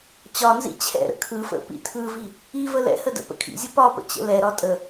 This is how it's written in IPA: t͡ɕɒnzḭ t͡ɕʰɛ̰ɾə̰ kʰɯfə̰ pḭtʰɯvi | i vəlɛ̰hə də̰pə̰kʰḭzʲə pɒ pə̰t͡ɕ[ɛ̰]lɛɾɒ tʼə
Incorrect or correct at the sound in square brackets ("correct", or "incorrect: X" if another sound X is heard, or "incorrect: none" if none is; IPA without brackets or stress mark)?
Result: incorrect: ə̰